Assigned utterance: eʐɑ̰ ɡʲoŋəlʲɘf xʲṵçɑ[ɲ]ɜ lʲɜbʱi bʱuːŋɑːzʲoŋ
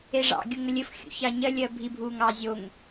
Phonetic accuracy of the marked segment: correct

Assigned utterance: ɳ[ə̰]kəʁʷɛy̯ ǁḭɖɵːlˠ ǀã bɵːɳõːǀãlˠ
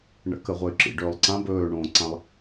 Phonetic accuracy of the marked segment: correct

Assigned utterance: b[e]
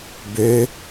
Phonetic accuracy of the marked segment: incorrect: ø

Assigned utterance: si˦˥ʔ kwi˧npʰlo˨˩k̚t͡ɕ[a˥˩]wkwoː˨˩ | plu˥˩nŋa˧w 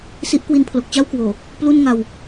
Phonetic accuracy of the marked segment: correct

